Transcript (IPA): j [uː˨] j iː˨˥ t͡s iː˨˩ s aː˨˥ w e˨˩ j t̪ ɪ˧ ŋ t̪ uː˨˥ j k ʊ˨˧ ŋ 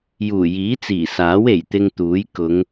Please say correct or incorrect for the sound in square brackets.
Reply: incorrect